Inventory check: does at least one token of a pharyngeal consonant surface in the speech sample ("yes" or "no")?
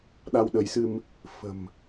no